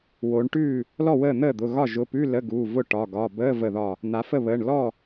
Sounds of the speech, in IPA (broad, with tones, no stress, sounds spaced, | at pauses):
w o˩˧ ɳ ʈ ʉː˥˩ | l ɔ˥˩ w əː˥˩ n̪ əː˥˩ d̪ ʊ˩˧˩ ɣ ɒ˥˩ ʒ ʊ˩˧˩ p ʉ˧˥˧ l ə˧˥˧ ɡ uː˩˧˩ v ʊ˥˩ ʈ ɒ˩˧˩ ɡ ɒ˩˧˩ b əː˧˥˧ v ə˧˩ ð ɒ˧˩ | n̪ a˩˧ f ə˥˩ β əː˩˧˩ ɳ l ɔ˥˩